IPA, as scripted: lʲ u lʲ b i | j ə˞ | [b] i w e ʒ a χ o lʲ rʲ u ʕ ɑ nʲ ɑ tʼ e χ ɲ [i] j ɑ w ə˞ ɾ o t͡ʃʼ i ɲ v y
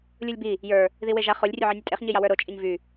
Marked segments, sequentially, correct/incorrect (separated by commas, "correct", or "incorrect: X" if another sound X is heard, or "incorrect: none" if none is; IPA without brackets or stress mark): incorrect: ð, correct